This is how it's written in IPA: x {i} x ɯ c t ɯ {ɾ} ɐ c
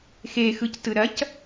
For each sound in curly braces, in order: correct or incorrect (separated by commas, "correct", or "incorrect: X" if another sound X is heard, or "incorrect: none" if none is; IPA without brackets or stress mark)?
incorrect: e, correct